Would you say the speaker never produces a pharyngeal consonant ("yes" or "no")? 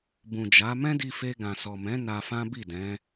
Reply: yes